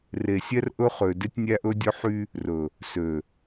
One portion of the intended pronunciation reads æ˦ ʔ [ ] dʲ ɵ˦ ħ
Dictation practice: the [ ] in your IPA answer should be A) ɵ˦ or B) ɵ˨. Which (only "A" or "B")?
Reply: A